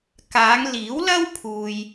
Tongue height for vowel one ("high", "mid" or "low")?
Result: low